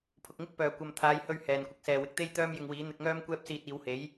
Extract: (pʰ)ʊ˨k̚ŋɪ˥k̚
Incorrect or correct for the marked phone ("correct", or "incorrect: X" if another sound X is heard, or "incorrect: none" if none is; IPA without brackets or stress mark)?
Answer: correct